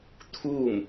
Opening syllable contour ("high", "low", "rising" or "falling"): falling